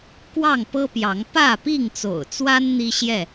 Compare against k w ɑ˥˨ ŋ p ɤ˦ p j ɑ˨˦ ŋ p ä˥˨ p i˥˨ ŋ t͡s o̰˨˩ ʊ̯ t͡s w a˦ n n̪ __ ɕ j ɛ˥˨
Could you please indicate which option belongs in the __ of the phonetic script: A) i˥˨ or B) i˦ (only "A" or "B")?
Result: B